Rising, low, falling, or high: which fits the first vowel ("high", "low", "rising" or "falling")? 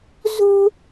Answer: high